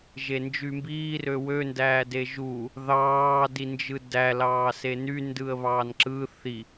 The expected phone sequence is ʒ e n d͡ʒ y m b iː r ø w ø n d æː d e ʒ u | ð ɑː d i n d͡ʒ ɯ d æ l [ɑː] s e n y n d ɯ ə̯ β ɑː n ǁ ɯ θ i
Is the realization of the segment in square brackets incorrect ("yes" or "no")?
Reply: no